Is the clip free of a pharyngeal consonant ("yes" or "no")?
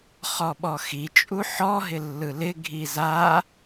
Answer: no